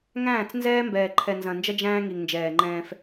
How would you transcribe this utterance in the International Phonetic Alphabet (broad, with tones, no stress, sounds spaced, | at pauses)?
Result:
ŋ æ̃ː˦˨ t͡s n z ɛː˦ m b ɛː˨ ǃʰ ɛ˨ n z ɐ̃˨ n d͡ʒ ɐ˦ d͡ʒ æ̃ː˦ ŋ i˨ ŋ n d͡ʒ ɛː˨ ŋ͡ǃ ɛ̃ː˦ f